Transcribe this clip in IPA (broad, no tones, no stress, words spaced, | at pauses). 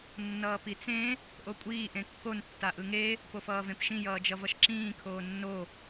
nːʌːpit͡sẽ | ʔokʷʼiː ʔẽkːon tːaʔɯŋe | pofʌːvẽpʃĩ jʌːd͡ʒʌvʌʃǁĩː kʰoːnːo